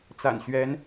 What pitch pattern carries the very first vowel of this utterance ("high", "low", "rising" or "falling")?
low